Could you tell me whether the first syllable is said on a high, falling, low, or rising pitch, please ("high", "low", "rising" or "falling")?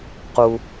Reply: low